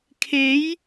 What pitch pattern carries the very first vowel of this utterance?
rising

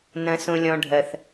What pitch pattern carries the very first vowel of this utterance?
low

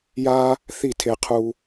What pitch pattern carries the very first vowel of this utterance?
high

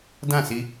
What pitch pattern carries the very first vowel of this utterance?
falling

